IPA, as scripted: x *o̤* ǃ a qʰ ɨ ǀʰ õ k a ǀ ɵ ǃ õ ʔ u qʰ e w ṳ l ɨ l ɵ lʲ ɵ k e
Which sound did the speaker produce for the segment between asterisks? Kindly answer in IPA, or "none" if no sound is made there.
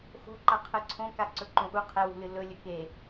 o̤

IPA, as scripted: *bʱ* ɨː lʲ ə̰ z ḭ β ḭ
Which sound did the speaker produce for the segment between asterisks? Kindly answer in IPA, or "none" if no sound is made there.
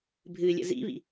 bʱ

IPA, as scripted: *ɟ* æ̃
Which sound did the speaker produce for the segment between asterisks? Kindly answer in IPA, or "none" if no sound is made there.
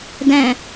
d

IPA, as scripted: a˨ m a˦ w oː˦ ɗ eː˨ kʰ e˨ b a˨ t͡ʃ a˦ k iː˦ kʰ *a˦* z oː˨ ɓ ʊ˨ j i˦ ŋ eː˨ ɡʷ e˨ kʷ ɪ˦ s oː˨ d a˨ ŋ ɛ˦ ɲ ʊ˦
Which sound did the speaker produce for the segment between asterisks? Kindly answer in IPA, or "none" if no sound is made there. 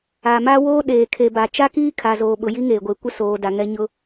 a˨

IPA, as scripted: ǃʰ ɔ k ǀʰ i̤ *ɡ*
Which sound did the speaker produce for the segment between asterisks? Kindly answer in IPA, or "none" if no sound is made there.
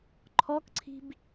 b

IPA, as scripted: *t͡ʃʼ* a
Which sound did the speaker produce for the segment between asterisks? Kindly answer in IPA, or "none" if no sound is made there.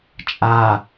t͡ʃʼ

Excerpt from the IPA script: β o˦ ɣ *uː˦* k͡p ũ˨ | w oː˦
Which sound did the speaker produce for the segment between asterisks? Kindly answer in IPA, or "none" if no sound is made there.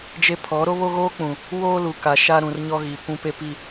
oː˦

